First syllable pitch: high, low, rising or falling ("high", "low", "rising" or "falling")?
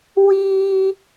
high